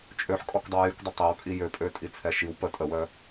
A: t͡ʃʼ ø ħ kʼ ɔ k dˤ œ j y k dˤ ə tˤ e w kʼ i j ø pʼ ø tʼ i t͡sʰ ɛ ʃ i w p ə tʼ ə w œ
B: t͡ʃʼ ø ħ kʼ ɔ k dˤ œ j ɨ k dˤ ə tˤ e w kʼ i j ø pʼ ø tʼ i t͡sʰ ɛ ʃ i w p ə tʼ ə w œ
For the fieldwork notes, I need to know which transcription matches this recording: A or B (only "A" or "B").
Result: A